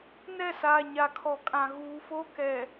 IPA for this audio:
nɛ˦˨saː˨ ɲa˨kʰɔ˨kʼã˨ ɣuː˨fo˦ kɛ˨

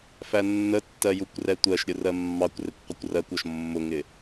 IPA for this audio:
fænːətːɜ jukʷrɛtʷɜʃɾʲʊ rɜmːɑkʷrɪkʷ qʷəkʷrɜkʷɔʃ mːʊŋɪ

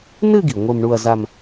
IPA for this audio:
nɨ˥˧ɡi˩ ŋʷe˥˧mɳu˥˧ɐ̯za˥˧m

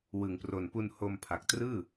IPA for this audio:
wɯ˨˩ŋpro˨˩npu˧n ho˧m pʰa˨˩k̚trɯː˥˩

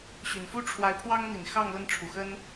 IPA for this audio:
ɕy˨˩nfu˥ ʈ͡ʂʰwa˧˥ɪ̯pʰwɑ˥ŋn̪i˨˩n xɑ˥˧ŋlə˥˩nʈ͡ʂʰu˨˩xə˥n

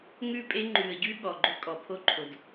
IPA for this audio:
ŋʉ˦˨pʼe˦ ŋ͡ǃʉ˨ə̯ɟʉ˦ ɠɔ˨ɡ͡ǃɵ˦kʼɔ˨ pʰo˦ǃʰo˨d

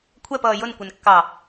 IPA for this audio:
kʷʰɛpʌː jʊnkʷɛn kːɑ

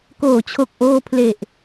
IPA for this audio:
koː˩˦t͡ɕʰo˨˩k̚ʔoː˧pʰle˨˩ʔ

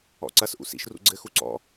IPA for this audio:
ɔ̰ǀɐsʔṵ sḭʃrṵ ɡ͡ǀɘxu ǀɔ̰

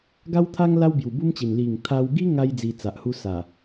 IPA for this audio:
ɡa˦wt̪ʰa˦ŋ la˦w bju˨˩bu˦mt͡ɕi˨˩n li˨˩ŋt̪ʰa˧wɡi˦ŋa˧j d͡zi˧t͡sa˨ʔhu˦sa˨˩

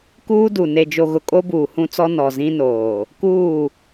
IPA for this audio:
kuː˦du˨ ne˨d͡ʒo˨ɣʊ˨ kʼo˦buː˨hũ˦t͡sɔ˦ nɔ˨zĩ˦noː˨ | kuː˦˨

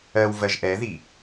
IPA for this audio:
ɜw vɜʒʔɛði

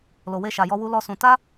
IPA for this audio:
lo˨we˧ʃa˨jɔ˧ wu˦lɔ˦sũ˧ ta˦

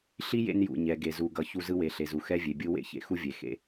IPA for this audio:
ɬi˦ jḛ˦njṵ˨ ɲɛ˨ɡe˨zu˨ɡʌ˨ çu˦ zɯ˦we˨ɬe˨zu˨ xɛ˦vʲe˨bʲɯ˦ wḛ˦ çḛ˦xu˦vʲe˨ xḛ˦

